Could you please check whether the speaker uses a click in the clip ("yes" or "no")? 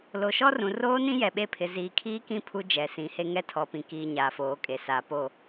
no